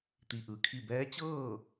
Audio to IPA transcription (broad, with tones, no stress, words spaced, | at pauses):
t̪i˧ʔɯː˩kʰi˥˨ bɛː˧˥t͡ɕɤː˥˨